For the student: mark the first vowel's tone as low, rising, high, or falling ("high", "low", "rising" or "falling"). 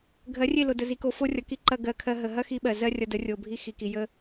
rising